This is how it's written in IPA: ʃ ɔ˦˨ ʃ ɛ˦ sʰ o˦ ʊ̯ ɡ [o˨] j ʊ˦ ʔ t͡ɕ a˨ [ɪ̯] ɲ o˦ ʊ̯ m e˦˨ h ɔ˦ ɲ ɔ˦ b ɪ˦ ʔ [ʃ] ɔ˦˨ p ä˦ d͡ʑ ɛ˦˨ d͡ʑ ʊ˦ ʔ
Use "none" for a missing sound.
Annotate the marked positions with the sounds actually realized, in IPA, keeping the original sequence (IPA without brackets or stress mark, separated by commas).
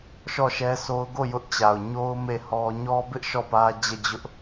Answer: o˦˨, ʊ̯, ʃ